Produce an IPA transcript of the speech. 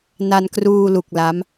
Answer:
n a˧ n k r uː˧ l u˨˩ k̚ l a˦˥ m

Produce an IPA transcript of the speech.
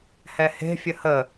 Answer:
h ɛ h e̤ fʲ ə h ə

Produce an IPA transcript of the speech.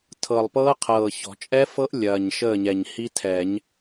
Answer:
tʰ ɤ˨˩ lˠ p ɤː˦˥ qʰ ɤː˨˩ ç ɔ̤˨˩˦ t͡ʃʼ ɛ˦˥ f ɤ˦˥ ʔ lʲ ɐː˨˩ ɲ ʃ əː˥˨ ɲ ɛ˨˩ ɲ h i˦˥ tʰ ɛ˨˩˦ ɲ

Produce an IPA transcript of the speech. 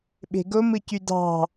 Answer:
ɓ e̤ ɡ o m ɯ c y d ɑ̤

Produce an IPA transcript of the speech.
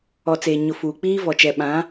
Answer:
ɔ˨ t͡s eː˨ ɲ ʊ˨ f uː˨ k͡p iː˦ v ɔ˨ t͡ʃ ɛ˨ ɓ ã˨˦

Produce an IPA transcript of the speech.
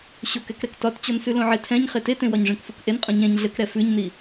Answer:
ɕ o k ɛ k ɾ ɛ k t ɒ t t͡ɕ ɔ n s ʉ l õ ʕ e tʰ ɛ̃ ɲ χ e t e t ẽ w ɒ ɲ ʐ ẽ k f u k ʔ e n qʼ ũ ɲ ɛ̃ ɲ ɮ ɘ k ɾ ɛ f ʉ ɲ n i

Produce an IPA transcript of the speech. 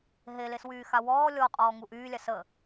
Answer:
ɦ e l e s w yː x a w ɔː lʲ ɔ qʼ ɔː ŋ u ʔ yː lʲ a s ə

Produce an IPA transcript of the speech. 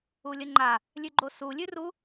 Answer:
u lʲ ə ŋ͡ǃ a | lʲ ʉ ɡ͡ǃ o s u lʲ ʉ r u

